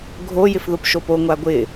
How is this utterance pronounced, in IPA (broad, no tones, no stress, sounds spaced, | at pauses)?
ɡʱ o j ɪ f ð o p ʃ o p o ŋʷ a ɡʷ ɪ